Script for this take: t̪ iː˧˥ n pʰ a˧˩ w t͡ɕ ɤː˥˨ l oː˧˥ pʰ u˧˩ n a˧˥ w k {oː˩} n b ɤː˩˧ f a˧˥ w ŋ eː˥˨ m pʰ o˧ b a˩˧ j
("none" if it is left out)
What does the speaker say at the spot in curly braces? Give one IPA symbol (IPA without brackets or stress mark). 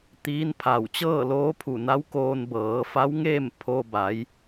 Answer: oː˧